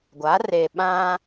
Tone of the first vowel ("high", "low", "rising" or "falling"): rising